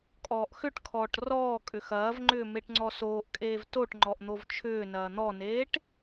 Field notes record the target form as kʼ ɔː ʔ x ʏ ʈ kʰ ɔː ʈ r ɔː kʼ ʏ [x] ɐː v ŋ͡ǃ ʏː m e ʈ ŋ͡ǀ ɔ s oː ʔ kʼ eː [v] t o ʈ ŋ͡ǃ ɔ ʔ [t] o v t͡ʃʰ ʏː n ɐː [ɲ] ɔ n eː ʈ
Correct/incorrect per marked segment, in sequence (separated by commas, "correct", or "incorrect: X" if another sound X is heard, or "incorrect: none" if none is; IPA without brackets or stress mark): correct, correct, incorrect: n̪, incorrect: n̪